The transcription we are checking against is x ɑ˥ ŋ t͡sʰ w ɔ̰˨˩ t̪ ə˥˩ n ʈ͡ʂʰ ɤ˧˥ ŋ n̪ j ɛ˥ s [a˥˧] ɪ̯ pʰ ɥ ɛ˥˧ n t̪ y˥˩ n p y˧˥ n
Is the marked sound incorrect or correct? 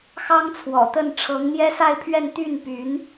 correct